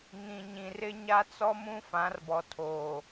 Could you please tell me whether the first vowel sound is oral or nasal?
nasal